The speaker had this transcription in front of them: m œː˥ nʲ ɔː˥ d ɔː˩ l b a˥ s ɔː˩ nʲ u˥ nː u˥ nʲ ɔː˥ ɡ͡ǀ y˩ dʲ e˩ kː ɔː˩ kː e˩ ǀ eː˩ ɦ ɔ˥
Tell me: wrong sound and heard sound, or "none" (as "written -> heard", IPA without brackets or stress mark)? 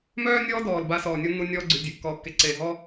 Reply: none